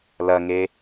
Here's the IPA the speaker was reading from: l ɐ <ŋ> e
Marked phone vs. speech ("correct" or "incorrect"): correct